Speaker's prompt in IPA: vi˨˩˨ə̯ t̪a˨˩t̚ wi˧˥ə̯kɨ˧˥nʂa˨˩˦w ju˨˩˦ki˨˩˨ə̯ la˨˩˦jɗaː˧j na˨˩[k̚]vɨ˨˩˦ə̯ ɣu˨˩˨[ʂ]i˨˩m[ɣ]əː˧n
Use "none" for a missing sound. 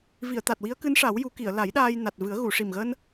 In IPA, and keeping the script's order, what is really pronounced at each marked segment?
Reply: t̚, ʂ, ɣ

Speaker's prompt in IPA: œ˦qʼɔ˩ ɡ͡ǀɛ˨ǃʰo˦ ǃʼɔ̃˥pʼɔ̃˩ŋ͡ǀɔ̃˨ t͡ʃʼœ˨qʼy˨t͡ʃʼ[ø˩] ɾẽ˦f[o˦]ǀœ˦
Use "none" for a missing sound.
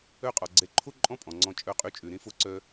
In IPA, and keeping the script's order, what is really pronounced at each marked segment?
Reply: ø˩, o˦

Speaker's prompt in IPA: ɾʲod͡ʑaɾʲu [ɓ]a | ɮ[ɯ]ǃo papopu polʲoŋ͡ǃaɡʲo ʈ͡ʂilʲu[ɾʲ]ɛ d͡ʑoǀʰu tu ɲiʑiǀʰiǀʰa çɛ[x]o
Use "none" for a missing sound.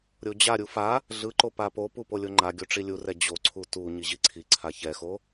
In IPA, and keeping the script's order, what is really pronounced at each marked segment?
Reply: f, ɯ, r, x

